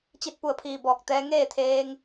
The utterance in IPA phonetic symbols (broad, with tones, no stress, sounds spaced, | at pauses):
t͡ɕ i˧ t̚ p u˧˩ ə̯ pʰ iː˧˩ b ɔː˧˩ k̚ t̪ ɛː˧ ŋ eː˥˨ t̪ʰ eː˧ ŋ